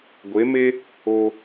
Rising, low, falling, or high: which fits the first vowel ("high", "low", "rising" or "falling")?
rising